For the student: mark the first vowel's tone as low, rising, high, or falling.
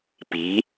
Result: rising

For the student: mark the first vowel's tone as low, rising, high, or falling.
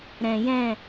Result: low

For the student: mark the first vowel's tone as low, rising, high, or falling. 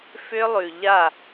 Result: high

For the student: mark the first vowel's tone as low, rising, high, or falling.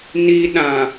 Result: high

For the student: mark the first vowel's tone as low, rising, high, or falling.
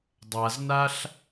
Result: low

